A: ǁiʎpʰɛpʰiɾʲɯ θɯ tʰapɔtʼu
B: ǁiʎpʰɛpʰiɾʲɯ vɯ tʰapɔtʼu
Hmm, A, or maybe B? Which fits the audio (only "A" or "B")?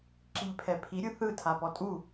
A